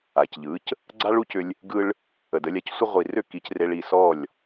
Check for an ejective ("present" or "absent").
absent